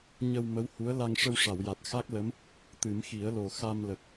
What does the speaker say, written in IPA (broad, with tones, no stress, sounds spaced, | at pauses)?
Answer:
ɲ ə˧ w m ə˧˥ w h u˧˥ ə̯ l a˧ ŋ ʂ ə˧ w ʂ a˨˩˨ w j a˨˩ t̚ x a˦˥ k̚ l ə˧˥ m | t̪ ɨ˨˩˦ m x i˨˩˦ ə̯ l o˨˩ x a˧ m l ə˨˩ k̚